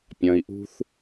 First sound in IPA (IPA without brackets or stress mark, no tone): pʲ